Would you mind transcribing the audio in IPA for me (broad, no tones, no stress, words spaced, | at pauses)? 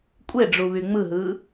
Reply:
kʷʼeɖ͡ʐu βyŋ͡mɯɦɯː